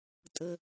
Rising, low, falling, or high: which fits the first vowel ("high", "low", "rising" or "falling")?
low